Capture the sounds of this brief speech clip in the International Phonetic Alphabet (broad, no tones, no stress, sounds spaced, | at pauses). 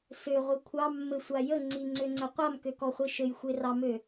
s ø ʁʷ ɨ kʷʰ ɑ mː ɘ sʷ a j ə ŋ͡ǀ i ŋ͡ǀ ø ŋ͡ǀ ɘ qʷ a m k ø k ɔ χʷ i ʃ ɘ j xʷ e r ɑ m ø